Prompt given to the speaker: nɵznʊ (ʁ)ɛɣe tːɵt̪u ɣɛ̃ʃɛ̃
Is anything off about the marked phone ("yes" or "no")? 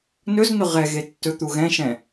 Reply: no